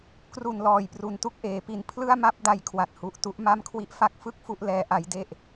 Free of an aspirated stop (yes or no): no